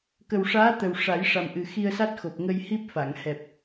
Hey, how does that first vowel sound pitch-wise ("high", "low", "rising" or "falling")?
low